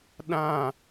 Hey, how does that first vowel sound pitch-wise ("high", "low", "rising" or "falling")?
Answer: falling